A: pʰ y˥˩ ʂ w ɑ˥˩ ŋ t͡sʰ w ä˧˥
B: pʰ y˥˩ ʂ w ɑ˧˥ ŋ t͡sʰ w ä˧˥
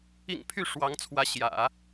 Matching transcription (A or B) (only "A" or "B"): B